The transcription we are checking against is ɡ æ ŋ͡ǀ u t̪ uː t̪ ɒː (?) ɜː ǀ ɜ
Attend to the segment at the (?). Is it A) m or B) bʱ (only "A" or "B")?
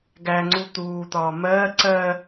A